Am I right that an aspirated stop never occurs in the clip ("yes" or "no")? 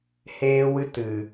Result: yes